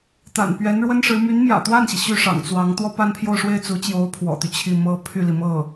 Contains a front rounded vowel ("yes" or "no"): yes